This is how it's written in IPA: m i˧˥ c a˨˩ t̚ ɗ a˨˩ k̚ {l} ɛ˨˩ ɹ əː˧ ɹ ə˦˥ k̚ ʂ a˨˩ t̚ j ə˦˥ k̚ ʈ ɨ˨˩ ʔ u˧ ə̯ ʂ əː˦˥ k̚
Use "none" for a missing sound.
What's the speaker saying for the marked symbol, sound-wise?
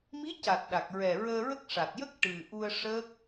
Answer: ɹ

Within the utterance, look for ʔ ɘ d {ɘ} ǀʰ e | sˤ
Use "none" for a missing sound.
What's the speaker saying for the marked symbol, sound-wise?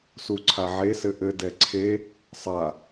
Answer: ɛ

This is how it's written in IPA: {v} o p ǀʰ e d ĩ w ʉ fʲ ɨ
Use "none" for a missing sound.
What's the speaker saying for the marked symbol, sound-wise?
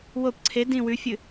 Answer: w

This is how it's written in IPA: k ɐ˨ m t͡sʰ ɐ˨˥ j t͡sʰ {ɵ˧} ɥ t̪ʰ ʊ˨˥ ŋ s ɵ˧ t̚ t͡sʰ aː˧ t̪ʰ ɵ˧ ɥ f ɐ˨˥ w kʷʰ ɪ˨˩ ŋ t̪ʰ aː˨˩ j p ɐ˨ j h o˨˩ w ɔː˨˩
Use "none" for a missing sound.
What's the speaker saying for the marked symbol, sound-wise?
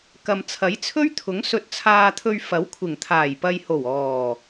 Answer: ɵ˥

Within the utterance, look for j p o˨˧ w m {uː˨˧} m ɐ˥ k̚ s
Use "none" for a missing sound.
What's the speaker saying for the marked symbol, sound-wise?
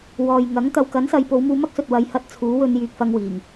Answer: uː˧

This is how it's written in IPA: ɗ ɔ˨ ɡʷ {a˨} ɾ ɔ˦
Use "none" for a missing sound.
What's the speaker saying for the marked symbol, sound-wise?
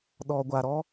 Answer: a˨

